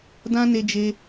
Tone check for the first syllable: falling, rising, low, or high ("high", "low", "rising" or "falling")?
high